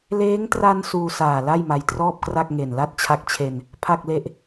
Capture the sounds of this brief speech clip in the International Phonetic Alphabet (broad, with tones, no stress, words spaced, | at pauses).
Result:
leː˦˥ŋtra˧n suː˧saː˨˩ la˥˩jma˧jtrɔː˥˩p̚kra˥˩k̚ ŋe˨˩nla˥˩t̚t͡ɕʰa˦˥k̚t͡ɕʰe˧n | pʰa˥˩k̚le˥˩ʔ